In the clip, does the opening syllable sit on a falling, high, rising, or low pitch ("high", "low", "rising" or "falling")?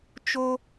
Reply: high